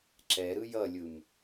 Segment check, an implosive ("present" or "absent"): absent